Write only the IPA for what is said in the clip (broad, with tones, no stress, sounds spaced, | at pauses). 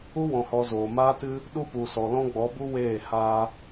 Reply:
u˦ w ɔ̃˨ h ɔ˨ z oː˨ m aː˦ t ɨ˦ | ɗ u˦ p u˨ s ɔ˨ l ɔ̃˦ ɡ͡b ɔ˨˦ b u˦ w eː˦˨ h aː˧